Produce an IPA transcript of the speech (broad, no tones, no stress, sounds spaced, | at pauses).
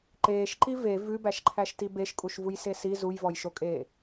ǃ eː ʃ ǃ i v e v ʉ b æ ʃ ǃʰ æ ʃ t i b e ʃ kʼ u ʃ v u j s e s i z u j v ɔ j ʃ o kʼ eː